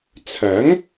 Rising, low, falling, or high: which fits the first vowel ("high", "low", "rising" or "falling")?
rising